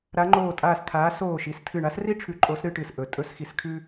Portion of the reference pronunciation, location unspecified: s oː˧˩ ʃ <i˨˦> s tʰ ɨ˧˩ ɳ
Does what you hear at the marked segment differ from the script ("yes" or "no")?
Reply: no